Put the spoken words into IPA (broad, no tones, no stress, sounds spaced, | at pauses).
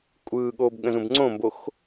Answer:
kʷʼ ɯː ɠ oː b ɠ ə̃ z ũ b ŋ͡ǀ õ m b o x